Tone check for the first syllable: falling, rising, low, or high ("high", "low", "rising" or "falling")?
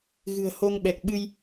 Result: low